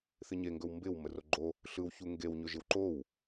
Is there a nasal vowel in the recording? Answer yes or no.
no